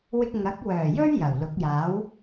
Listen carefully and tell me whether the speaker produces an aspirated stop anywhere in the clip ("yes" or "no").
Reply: no